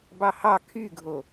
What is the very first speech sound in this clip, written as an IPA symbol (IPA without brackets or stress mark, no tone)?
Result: b